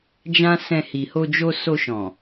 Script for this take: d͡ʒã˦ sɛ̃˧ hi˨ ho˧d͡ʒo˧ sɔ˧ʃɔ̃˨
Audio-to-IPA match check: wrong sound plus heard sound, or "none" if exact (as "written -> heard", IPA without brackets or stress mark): ɔ˧ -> o˧